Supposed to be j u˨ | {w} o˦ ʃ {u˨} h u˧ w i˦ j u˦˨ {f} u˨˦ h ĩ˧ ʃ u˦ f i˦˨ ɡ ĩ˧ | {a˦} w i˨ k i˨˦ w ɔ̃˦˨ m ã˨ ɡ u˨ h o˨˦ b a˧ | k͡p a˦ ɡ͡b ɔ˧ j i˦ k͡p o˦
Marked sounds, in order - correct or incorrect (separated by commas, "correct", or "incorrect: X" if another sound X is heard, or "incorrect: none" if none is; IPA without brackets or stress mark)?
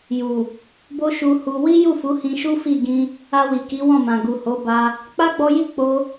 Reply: incorrect: b, incorrect: u˧, correct, incorrect: a˧